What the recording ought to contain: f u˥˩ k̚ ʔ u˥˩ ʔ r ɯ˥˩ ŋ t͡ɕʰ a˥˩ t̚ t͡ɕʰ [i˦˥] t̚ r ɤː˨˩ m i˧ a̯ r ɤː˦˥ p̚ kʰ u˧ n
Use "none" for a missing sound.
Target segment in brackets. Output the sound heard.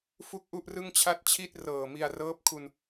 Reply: i˥˩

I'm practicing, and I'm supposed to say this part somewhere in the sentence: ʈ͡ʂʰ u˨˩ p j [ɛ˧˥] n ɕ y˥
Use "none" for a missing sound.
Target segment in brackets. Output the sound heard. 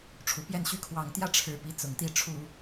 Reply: ɛ˥˩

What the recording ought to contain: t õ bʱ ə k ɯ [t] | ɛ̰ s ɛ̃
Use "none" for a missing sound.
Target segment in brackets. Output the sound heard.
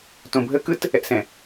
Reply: t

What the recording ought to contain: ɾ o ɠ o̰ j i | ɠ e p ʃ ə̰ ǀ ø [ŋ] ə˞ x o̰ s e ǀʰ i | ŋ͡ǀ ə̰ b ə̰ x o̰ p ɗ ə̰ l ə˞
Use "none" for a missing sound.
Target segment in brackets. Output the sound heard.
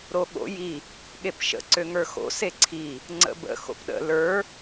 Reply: ŋ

